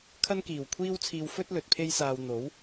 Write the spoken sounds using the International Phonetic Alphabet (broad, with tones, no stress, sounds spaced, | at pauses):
kʰ ɐ˥ n k iː˨˩ w kʷʰ iː˥ w t͡sʰ iː˧ w f ɵ˥ t̚ l ɵ˨ t̚ pʰ e˥ j s aː˧ w n̪ o˨˥ w